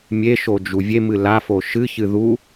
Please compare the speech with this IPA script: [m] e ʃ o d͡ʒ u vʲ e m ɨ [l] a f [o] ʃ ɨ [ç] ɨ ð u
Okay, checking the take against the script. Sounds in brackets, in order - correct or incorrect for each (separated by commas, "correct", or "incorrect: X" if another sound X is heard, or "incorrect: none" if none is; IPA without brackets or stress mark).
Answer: incorrect: mʲ, correct, correct, correct